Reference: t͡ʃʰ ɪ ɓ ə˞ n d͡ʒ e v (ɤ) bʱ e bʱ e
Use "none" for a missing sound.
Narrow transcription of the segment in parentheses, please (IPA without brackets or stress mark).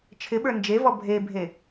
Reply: ɔ